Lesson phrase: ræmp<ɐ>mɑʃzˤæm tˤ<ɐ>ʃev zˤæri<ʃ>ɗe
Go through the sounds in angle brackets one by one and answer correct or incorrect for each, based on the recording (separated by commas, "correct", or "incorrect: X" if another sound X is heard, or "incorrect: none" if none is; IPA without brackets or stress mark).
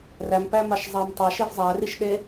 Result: incorrect: æ, incorrect: ɑ, correct